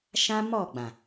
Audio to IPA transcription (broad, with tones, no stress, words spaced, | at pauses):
ʃã˦mɔ˦˨ɡ͡bã˨